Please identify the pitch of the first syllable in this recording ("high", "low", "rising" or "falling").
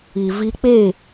low